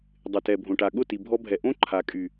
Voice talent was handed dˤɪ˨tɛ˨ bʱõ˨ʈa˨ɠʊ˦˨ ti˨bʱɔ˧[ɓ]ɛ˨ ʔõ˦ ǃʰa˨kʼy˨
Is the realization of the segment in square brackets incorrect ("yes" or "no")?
yes